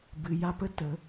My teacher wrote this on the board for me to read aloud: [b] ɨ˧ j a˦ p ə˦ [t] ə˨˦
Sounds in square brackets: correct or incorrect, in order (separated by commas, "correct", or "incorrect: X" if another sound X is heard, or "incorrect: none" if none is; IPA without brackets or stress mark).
correct, correct